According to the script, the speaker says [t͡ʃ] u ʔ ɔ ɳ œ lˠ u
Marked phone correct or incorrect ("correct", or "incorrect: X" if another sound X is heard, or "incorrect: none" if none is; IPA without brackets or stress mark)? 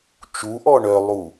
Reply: correct